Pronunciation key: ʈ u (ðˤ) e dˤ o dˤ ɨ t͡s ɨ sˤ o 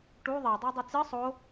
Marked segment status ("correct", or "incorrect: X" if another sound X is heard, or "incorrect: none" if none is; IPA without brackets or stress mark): correct